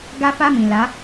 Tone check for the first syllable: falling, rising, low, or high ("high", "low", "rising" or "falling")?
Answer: high